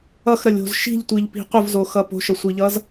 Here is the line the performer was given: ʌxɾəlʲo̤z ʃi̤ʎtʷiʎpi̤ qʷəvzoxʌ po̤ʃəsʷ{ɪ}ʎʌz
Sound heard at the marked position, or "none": i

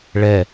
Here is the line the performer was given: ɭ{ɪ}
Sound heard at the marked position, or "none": ɛ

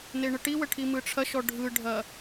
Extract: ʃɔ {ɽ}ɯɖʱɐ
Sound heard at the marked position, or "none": ɖʱ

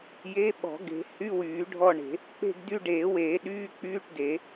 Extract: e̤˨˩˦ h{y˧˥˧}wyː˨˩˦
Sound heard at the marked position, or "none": y˧˥˧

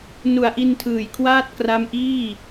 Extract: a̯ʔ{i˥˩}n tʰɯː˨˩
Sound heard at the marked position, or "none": i˧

